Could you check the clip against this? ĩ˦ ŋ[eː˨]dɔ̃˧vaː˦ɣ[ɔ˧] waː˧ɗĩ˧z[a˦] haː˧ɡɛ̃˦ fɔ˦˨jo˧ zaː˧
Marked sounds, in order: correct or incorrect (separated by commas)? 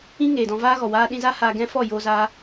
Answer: correct, incorrect, correct